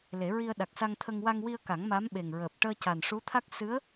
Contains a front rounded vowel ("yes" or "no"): no